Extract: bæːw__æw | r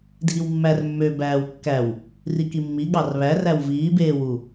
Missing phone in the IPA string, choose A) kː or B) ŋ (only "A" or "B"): A